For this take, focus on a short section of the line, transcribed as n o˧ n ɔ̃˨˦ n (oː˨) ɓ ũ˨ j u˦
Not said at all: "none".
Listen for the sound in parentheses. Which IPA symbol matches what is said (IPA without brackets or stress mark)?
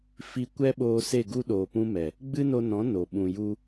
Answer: o˨